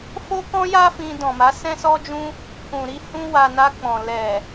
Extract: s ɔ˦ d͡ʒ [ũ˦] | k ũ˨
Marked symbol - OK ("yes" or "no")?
yes